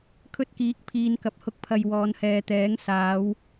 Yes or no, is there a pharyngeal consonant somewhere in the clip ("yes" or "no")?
no